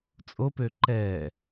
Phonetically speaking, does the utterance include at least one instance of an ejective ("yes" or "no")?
yes